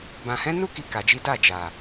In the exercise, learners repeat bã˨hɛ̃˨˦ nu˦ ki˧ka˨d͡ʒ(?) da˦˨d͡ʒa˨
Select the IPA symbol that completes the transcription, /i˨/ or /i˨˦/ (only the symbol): i˨˦